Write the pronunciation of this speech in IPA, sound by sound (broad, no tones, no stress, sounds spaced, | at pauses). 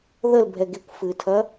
ð ə l bʱ ɛ ɡ e kʷ f ɨ tʰ ɐ